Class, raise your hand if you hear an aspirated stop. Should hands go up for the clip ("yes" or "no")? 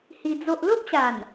no